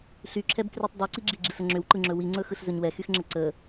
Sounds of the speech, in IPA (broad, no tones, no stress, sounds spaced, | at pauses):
ɬ y ǁʰ ɛ b k r y tˤ dˤ i ǀ i ɡ͡ǁ i ɡ͡ǁ i ɬ ə ŋ͡ǁ ʏ w ǃ ɯ ŋ͡ǁ ɵ w i ŋ͡ǀ ɵ x ɯ ɬ z ɵ ɲ w ɛ x y x ŋ͡ǁ ə ǀ ə